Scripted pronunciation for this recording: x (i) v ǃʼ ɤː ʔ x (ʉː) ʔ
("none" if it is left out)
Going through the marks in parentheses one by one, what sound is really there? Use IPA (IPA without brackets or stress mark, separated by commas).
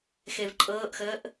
e, əː